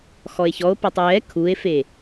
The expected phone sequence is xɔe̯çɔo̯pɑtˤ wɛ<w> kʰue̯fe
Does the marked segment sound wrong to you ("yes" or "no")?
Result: yes